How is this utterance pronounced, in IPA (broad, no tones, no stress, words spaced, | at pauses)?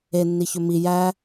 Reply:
enːiçɵ mi jæ